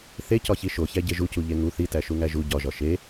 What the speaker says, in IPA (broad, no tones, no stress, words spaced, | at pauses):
θecɒçi ʃoçæɟe ʒucuʎe ŋu θitæʃuŋæ ʒu ɟɒʒɒ ʃe